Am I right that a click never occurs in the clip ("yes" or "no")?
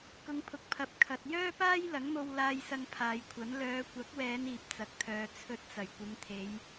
yes